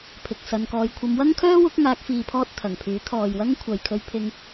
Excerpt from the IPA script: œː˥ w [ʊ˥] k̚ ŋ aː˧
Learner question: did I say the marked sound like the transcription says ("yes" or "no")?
no